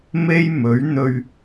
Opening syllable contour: high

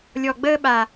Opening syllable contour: low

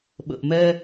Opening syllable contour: low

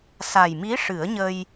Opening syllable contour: low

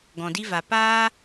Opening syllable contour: low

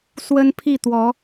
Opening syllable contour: high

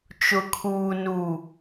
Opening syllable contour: low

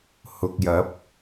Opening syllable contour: low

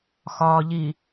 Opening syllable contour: low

